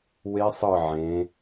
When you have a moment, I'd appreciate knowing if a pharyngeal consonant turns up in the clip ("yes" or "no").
yes